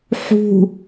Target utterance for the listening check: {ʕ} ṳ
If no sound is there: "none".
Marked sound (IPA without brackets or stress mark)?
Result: ħ